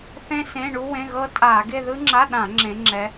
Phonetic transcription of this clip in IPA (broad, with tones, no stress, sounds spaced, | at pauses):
θ ẽ˥ s ẽ˧˥˧ ɳ u˥ w ẽ˧˥˧ ɣ ɤ˥ tʼ a˧˩˧ ɡ e˥˧ ð ɯ˥ ŋ͡ǁ a˧˥˧ ɗ ã˧˩˧ ŋ͡ǁ ẽ˨˦ ŋ͡ǁ ɛ˨˦